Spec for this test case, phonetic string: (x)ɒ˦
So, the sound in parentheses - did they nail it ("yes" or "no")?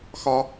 yes